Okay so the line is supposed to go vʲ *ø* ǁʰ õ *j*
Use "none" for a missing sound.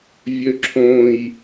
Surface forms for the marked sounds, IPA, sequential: ø, j

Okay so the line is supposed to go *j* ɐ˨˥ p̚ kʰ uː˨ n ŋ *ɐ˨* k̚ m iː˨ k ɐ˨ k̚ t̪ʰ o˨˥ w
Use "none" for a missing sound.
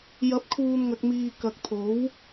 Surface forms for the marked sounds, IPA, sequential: j, ɐ˨

